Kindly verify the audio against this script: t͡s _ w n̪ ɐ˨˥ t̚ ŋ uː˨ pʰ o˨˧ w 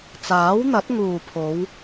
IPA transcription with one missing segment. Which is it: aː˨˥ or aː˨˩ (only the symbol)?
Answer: aː˨˥